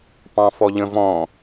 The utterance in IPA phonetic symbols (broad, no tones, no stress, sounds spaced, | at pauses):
p ɑ̃ f ɔ ʎ ə̃ v ɔ̃